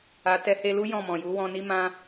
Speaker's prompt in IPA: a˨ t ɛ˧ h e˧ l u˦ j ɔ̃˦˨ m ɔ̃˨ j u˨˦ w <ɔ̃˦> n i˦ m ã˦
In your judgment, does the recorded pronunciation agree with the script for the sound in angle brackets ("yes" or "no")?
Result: no